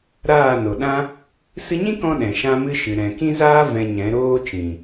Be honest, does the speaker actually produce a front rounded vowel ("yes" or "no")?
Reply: no